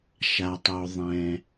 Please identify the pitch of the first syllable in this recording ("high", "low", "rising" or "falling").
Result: low